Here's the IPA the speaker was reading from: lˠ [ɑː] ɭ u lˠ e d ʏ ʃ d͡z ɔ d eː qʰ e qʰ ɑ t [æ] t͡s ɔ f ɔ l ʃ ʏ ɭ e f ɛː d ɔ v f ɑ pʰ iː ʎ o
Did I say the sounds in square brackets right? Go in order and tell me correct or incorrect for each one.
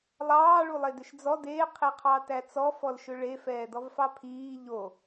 correct, correct

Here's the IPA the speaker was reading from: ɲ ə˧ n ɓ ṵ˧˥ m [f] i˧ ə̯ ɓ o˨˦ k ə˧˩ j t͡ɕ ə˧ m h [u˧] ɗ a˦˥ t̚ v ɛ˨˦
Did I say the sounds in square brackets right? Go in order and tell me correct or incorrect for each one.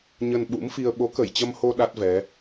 correct, incorrect: o˧

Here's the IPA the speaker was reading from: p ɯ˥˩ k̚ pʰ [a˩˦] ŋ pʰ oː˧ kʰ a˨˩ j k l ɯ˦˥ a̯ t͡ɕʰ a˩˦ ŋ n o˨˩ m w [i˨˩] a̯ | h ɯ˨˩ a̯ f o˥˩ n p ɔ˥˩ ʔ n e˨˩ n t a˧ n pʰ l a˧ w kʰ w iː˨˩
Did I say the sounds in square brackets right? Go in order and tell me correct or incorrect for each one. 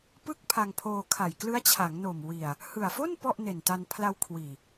incorrect: a˧, correct

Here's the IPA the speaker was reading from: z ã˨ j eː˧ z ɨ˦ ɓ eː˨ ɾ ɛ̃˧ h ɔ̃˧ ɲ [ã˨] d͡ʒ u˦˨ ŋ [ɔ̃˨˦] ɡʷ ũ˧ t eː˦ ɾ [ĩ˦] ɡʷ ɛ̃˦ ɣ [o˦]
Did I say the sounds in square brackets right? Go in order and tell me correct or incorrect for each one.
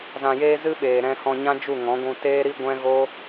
incorrect: ã˦, correct, incorrect: i˦, correct

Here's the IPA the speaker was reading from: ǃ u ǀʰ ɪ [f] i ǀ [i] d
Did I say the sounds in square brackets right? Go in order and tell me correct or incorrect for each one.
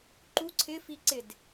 correct, incorrect: ɪ

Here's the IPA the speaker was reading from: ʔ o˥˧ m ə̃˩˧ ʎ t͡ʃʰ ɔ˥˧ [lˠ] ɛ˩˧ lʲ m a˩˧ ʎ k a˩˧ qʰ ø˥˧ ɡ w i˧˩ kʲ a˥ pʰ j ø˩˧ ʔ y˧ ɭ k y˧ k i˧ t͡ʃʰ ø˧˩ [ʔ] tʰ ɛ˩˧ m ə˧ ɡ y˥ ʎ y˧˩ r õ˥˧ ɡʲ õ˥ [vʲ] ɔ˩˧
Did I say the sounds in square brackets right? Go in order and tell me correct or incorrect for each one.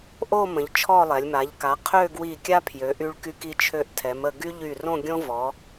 correct, correct, incorrect: v

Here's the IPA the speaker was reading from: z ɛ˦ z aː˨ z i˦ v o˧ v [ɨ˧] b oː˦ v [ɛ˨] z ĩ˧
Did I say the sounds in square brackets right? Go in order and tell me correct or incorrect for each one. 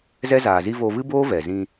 incorrect: ɨ˦, correct

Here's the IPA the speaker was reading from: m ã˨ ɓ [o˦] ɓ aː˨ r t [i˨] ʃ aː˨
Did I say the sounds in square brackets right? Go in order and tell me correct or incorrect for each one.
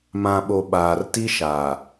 incorrect: o˨, incorrect: i˦

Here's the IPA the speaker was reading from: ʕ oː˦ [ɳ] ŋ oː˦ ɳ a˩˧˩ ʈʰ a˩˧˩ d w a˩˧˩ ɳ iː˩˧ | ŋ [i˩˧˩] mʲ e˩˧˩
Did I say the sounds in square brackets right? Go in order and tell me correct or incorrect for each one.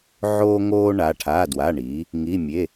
incorrect: none, correct

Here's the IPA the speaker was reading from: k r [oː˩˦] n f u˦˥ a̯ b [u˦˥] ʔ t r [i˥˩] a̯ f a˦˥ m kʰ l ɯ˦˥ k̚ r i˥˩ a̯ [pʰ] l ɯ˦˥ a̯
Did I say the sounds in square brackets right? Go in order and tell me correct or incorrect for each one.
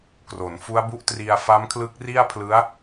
incorrect: o˩˦, correct, incorrect: i˧, correct

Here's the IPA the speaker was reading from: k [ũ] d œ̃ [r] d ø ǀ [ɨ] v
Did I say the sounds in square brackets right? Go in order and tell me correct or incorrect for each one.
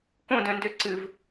incorrect: õ, incorrect: n, correct

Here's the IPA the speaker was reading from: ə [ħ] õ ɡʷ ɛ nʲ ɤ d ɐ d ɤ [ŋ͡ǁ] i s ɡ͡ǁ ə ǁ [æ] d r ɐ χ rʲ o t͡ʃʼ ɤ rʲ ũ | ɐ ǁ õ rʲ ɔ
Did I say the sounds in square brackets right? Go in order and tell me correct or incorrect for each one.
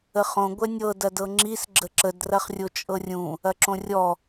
incorrect: χ, correct, incorrect: ə

